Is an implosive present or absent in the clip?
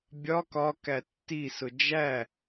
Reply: absent